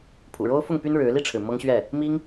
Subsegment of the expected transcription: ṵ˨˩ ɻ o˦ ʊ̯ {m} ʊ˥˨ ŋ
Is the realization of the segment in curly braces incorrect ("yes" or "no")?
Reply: yes